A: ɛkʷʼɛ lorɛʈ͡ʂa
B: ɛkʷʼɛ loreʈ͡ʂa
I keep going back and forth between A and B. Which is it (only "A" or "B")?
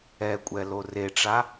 B